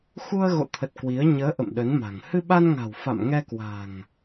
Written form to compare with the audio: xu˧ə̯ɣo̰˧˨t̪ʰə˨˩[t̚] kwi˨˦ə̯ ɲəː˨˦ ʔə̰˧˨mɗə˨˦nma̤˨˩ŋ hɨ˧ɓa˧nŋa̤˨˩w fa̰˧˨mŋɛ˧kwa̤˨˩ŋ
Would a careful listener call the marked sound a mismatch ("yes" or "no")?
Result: no